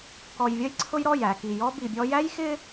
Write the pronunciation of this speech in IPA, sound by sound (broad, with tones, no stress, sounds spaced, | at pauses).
k ɔ˨ j vʲ ʌ˦ j ǀʰ ʊ˦ j ɾ ɔ˦˨ j æ˨ k i˨ j ɔ˦ b i˨ bʲ ɔ˦ j æ˦ j x ɪ˦